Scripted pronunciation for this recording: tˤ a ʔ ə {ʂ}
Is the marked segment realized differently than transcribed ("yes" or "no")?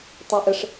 no